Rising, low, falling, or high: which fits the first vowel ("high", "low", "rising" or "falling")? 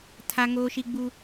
high